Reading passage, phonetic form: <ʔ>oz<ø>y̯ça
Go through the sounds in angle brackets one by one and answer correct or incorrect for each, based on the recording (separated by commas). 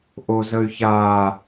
correct, incorrect